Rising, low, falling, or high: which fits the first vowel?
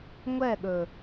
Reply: falling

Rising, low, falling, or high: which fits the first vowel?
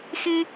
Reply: high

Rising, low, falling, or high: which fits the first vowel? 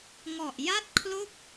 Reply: low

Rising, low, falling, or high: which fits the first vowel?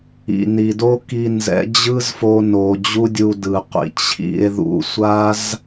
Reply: low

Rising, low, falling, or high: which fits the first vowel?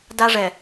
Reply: high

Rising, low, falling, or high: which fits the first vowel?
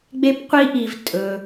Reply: high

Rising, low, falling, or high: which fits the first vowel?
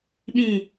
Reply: falling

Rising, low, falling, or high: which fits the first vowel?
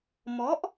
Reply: rising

